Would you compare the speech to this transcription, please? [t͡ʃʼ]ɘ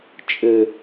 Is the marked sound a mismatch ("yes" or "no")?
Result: no